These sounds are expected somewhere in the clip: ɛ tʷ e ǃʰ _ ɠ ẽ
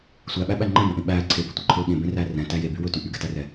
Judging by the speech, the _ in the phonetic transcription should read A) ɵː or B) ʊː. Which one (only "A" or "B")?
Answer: A